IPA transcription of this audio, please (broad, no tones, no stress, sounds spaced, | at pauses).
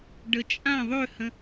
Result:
ɖ ə t͡ʃʼ ã ðˤ ø h ə̃